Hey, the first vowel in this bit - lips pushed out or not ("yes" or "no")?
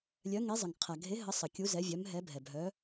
yes